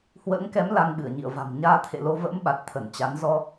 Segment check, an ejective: absent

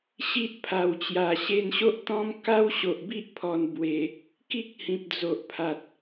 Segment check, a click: absent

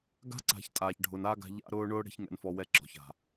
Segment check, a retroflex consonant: present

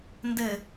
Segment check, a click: absent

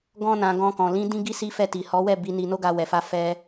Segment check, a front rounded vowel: absent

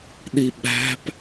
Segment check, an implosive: present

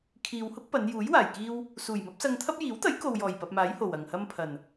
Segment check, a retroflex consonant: absent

